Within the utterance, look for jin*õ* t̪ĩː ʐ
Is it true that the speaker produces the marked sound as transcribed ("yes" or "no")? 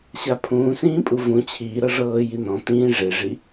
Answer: no